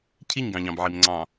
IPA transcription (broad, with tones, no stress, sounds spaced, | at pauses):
cʰ i˦˨ ɲ ɡ ɑ̃˨ ʎ ɑ̃˨ b ʕ i˨ m ŋ͡ǀ ɑ̃˨